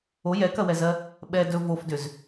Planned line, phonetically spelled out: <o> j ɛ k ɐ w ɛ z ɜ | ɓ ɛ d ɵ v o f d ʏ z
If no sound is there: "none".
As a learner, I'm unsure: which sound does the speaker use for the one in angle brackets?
o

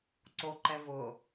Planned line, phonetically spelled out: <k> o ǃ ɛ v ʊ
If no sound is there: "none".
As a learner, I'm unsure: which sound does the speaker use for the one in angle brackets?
ǀ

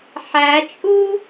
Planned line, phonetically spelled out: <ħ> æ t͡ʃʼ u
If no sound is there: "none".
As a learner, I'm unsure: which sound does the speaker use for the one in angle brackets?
ħ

